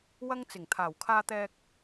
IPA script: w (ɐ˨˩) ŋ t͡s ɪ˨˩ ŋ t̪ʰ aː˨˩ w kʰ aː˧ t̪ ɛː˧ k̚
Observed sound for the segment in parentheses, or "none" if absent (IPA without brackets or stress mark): ɐ˧